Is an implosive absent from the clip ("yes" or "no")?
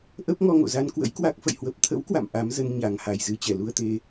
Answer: yes